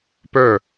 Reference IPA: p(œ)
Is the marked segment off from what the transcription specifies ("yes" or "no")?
no